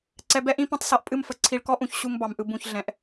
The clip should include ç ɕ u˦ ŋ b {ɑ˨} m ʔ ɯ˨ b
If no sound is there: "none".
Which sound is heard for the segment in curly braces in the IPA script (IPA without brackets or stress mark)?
ɑ˨